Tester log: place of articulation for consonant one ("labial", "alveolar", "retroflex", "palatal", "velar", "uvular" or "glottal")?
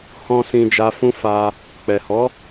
glottal